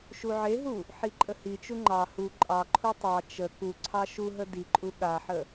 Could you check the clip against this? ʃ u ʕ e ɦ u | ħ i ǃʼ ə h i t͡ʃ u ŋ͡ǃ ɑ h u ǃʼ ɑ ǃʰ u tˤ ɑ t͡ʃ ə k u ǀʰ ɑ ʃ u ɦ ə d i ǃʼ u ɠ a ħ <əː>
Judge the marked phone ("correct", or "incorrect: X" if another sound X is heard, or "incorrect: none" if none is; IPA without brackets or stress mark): incorrect: ə